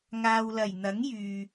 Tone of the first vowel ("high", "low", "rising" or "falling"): low